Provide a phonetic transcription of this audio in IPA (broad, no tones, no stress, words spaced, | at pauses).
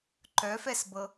ǃœfɛsbɤ